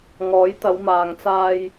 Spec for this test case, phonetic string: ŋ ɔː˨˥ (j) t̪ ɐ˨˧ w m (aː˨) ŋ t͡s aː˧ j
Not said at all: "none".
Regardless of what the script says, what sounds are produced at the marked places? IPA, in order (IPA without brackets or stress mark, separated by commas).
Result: j, aː˨